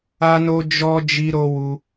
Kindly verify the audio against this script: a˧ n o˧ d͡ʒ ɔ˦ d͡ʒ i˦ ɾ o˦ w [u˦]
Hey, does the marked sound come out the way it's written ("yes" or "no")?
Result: yes